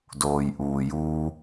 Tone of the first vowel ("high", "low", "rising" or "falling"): low